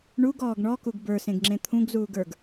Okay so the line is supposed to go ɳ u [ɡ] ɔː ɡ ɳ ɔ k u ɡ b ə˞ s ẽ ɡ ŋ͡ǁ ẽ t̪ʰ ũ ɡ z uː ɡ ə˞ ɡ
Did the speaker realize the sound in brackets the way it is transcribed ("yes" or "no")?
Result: yes